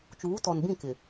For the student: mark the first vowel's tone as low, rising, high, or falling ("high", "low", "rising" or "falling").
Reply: rising